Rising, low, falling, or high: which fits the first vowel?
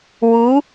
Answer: rising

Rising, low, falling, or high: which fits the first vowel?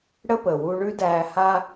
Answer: high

